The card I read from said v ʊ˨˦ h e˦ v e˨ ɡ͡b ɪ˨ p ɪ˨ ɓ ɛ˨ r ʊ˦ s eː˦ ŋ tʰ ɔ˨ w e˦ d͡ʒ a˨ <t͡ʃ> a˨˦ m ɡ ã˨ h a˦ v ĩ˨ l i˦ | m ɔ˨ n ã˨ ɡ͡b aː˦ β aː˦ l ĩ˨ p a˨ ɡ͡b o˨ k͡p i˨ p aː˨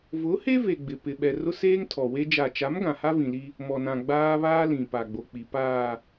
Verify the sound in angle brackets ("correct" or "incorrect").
correct